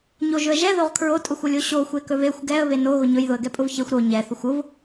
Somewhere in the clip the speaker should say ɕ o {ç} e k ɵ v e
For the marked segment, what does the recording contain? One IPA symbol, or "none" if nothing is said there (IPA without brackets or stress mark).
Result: xʷ